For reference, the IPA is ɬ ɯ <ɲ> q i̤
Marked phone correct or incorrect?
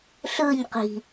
correct